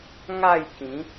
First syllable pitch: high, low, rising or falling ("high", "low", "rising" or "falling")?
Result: falling